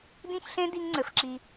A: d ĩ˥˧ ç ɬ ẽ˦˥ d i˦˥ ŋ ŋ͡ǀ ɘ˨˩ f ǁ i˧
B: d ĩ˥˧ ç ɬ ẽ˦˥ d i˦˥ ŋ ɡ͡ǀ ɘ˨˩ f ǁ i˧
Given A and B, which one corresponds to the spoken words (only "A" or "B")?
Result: A